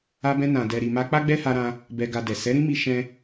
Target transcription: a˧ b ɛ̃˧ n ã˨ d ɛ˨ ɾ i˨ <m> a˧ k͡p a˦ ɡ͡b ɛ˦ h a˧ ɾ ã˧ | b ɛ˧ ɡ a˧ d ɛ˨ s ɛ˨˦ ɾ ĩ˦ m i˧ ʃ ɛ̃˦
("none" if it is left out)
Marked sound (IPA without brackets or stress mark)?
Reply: m